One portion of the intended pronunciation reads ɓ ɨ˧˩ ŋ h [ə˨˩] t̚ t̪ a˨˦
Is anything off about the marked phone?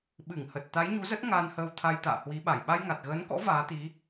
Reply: no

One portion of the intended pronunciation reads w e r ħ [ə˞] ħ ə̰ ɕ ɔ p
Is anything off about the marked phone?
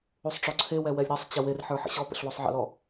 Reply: no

